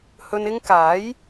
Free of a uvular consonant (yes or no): yes